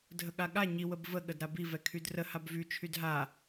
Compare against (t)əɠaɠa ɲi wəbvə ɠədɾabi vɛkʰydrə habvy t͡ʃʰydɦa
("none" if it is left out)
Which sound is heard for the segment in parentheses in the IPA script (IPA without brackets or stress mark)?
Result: dʱ